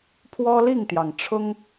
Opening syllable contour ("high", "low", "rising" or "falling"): high